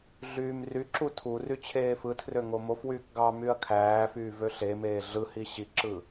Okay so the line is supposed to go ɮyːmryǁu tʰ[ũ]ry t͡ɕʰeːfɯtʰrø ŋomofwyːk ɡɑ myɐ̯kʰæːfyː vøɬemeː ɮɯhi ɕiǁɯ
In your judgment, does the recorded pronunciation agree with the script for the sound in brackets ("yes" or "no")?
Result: no